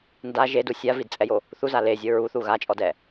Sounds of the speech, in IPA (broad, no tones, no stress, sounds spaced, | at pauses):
n d a ʒ e d u sʲ a v i d t͡sʼ ɛ j o | θ u z a l e zʲ ɤ ɹ u θ u ɣ a t͡ʃʼ ɔ d ɛ